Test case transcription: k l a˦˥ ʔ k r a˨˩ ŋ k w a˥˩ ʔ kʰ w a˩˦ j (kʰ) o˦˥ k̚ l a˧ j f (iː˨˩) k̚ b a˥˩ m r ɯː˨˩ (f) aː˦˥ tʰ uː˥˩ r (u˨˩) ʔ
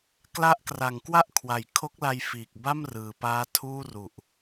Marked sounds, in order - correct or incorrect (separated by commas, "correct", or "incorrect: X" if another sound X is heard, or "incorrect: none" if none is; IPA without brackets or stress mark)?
correct, correct, incorrect: p, correct